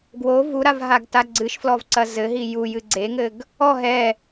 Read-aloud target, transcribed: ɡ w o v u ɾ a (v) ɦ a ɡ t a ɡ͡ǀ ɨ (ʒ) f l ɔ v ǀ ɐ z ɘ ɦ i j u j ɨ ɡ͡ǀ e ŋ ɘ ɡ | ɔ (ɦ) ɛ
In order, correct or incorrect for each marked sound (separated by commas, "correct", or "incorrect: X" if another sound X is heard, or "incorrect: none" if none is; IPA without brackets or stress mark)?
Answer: correct, incorrect: ʃ, correct